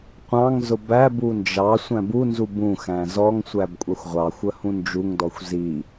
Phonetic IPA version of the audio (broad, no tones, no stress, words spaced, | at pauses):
qʷɑ̃ŋ zʊbæbu nd͡ʒɑ sʷæ̃bunzu bũxæ̃ zɔŋsʷæb kʷʼɑxʷʁʷɑxʷə hũnd͡ʒuŋdɔxʷ zi